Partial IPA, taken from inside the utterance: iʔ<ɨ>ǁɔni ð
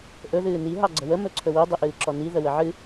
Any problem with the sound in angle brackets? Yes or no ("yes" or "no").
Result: yes